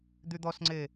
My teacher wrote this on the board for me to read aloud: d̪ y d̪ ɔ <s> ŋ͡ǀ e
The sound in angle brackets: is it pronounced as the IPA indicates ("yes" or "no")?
yes